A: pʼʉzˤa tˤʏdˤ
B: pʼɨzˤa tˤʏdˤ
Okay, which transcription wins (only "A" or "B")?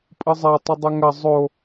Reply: B